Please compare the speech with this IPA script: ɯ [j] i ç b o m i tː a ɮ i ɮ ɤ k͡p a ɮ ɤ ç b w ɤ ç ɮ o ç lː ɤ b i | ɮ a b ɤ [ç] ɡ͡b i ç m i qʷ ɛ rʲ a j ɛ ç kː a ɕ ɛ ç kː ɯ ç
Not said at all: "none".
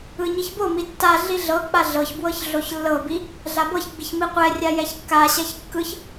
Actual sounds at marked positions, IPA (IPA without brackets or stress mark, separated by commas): ɲ, ç